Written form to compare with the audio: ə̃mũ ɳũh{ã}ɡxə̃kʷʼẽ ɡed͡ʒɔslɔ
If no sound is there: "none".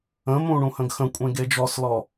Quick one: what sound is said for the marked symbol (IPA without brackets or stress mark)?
ə̃